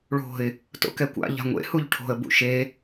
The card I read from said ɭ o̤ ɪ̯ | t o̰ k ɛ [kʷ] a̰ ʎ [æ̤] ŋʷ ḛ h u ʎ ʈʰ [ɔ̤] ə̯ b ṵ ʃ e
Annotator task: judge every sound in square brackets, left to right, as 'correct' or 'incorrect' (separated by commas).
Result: correct, incorrect, incorrect